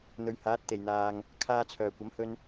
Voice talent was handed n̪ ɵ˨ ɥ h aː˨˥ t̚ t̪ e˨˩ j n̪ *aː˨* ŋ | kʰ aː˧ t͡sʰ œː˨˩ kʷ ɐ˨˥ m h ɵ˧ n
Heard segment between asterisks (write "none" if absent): aː˨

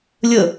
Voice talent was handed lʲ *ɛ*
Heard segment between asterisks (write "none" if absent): ə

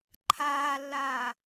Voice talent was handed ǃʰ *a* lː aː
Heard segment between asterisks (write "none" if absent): aː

